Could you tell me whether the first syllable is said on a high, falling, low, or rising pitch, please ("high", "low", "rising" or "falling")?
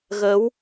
rising